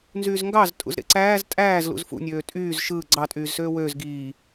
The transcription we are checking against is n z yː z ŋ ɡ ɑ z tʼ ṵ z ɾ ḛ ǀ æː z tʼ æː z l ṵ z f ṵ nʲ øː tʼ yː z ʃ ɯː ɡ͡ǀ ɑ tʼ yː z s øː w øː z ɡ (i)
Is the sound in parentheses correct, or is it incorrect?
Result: incorrect